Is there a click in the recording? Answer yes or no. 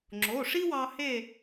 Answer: yes